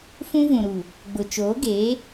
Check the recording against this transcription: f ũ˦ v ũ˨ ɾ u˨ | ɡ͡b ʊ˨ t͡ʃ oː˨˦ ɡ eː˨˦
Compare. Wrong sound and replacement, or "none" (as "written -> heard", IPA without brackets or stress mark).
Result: none